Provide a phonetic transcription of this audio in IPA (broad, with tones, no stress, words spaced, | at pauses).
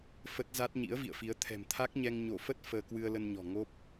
fə˦˥t̚za˦˥t̚ ɲḭ˧˥ə̯vḭ˧˨ə̯fi˨˦ə̯ t̪ʰɛ̤˨˩m t̪ʰa˦˥k̚ɲɛ˧ŋ ɲo˧˩ fə˦˥t̚ fəː˧ kwɨ˧ə̯lə˧nɲɔ̤˨˩ ŋo˦˥p̚